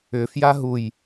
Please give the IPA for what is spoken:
ʏ f j a ɦ u j

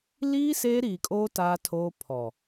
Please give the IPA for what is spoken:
l iː˦ s eː˦ ɾ iː˨ kʼ oː˦ t aː˦ tʰ oː˦ pʰ ɔ˨

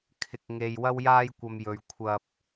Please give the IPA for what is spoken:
kʰ ɪ˨ k̚ ŋ e˨ j w ɐ˧ w j aː˧ j kʷ ɐ˨ m j ɵ˨ ɥ kʷʰ ɐ˧ p̚

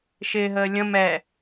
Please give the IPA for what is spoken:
ʃ ɪː ɦ əː lʲ ə̃ m ɛ

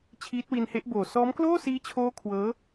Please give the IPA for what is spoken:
t͡ɕʰ iː˦˥ t̚ w i˧ n h e˦˥ ʔ b oː˨˩ s ɔː˦˥ m k l oː˥˩ s iː˦˥ t͡ɕʰ oː˦˥ kʰ w ɤː˦˥

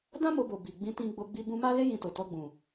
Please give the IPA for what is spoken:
d ã˦ m o˧ b o˨ b i˨ ɡ͡b ĩ˧ t ĩ˧ ɡ͡b o˧ ɡ͡b i˧ b ũ˧ m a˦ l e˦ j ĩ˧ t o˨ t ɔ˧ ɡ͡b ũ˨

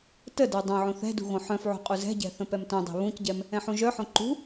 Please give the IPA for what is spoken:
t ə d œ dˤ œ̃ ʕ õ θ ɛ̤ d ṳ ɣ õ ħ œ̃ f ʕ ṳ qʼ u z ɛ̤ ɟ ɛ̤ θ ə̃ p ɛ m t œ̃ dˤ e̤ β ũ c ɟ ɛ m | ɛ̃ ħ ũ ʒ œ ħ õ ǃ ṳ

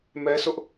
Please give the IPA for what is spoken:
m ɛ˦ sʰ ʊ˦ ʔ

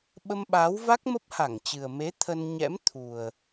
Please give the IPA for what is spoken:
ɓ ə˧ m ɓ aː˨˦ w v a˦˥ k̚ m ə˦˥ p̚ h a˧˩ ŋ t͡ɕ ɨ˨˩ ə̯ m e˨˦ t̪ʰ ə˧ n ɲ ɛ̰˧˥ m t̪ʰ u˨˩ ə̯

